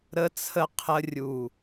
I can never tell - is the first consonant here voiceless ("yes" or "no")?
no